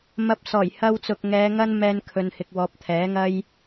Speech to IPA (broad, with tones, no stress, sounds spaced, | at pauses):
m ɐ˧ p̚ s ɔː˨˩ j h ɐ˧ w t͡s ʊ˨ k̚ ŋ ɛː˨˧ ŋ ɐ˥ n m ɛː˧ n kʰ ɵ˨ n h ɪ˨ k̚ w ɔː˨˥ p̚ t̪ʰ ɛː˨˥ ŋ ɐ˥ j